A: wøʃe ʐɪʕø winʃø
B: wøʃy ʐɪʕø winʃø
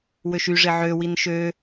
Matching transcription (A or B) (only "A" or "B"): B